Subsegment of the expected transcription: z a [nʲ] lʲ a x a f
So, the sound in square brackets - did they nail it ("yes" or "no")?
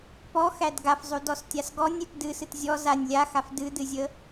yes